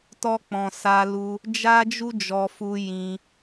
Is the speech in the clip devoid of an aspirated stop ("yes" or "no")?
yes